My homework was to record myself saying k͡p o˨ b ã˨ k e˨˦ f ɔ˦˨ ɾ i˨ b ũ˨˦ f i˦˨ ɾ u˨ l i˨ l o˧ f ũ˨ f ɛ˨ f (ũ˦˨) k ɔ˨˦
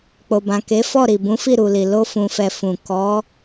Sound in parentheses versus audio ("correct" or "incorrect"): incorrect